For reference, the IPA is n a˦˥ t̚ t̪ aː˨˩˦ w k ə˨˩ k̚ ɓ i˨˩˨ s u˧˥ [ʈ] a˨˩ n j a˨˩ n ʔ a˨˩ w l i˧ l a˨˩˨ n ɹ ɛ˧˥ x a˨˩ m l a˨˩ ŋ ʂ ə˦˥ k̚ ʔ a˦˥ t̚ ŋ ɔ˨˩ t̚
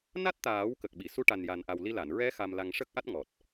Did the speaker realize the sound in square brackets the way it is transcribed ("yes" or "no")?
yes